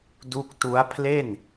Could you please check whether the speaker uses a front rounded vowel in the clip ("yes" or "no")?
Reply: no